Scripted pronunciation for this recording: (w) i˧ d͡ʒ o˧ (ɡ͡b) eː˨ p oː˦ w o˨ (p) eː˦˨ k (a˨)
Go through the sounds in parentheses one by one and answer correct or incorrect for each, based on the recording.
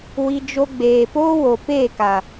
correct, correct, correct, correct

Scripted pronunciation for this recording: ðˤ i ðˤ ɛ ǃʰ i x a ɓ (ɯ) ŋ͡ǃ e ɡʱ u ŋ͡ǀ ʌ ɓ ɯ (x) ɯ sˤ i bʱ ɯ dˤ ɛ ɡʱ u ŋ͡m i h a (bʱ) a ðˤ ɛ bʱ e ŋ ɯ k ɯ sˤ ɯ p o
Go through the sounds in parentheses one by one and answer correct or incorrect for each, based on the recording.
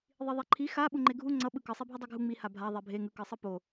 incorrect: u, incorrect: k, correct

